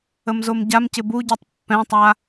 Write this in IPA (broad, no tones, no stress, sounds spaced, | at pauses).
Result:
ə m z o m ɟ a m c ɪ b u ɟ o tˤ pː ɛ̃ tˤ a